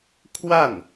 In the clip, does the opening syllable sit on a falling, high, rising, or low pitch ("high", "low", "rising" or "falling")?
falling